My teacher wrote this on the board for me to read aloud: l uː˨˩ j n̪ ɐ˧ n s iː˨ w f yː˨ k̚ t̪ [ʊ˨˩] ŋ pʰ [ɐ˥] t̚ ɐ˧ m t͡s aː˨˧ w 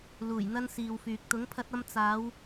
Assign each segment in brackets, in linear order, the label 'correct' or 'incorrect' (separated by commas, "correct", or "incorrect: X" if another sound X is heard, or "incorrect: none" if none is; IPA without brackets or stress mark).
incorrect: ʊ˨˥, incorrect: ɐ˧